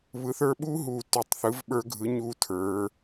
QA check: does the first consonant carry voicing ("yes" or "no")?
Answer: yes